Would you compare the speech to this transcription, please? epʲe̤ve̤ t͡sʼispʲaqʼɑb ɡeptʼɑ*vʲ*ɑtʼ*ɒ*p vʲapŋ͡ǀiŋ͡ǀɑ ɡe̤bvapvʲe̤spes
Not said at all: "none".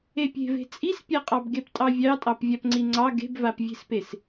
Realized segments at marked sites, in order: vʲ, ɑ

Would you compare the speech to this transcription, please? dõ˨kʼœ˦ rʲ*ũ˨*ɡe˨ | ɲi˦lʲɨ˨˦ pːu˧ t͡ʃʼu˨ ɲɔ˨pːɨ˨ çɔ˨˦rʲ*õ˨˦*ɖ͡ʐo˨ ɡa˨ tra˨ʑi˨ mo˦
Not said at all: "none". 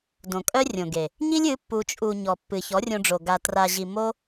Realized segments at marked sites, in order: õ˨, õ˧

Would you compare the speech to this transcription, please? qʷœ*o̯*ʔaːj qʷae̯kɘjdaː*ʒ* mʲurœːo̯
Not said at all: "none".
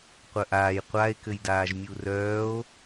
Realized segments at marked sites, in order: none, ʒ

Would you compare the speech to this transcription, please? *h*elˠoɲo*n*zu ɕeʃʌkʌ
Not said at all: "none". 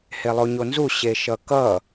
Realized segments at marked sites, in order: h, n

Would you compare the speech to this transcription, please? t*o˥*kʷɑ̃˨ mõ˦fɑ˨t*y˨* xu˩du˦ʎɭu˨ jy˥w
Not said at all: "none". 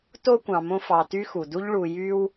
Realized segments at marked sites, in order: o˦, y˦

